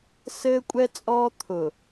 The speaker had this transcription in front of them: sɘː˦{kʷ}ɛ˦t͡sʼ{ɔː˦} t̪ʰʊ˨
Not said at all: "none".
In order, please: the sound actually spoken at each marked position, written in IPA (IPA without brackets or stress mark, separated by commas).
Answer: kʷʼ, ɔː˦